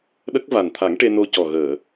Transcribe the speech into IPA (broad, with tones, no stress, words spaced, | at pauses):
ɗə˦˥k̚ va˨˩nt̪ʰa˨˩˦ŋ ʈe˧no˧cɔ˨˩ ɣəː˨˩˨